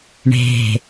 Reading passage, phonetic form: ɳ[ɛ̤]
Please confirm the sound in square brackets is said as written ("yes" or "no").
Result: no